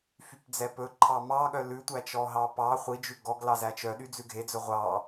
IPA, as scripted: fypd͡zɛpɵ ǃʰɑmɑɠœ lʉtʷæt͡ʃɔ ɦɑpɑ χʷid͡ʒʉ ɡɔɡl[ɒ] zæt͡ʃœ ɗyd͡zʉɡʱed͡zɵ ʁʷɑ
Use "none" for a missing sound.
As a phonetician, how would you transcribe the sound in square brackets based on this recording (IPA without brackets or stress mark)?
ɑ